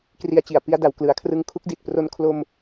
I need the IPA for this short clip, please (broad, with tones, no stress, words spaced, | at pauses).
kri˧a̯t͡ɕi˨˩a̯ pi˧a̯da˨˩wklɯ˩˦a̯kʰrɯ˧ŋ kʰu˦˥k̚di˨˩t̚pro˧n kʰlo˧m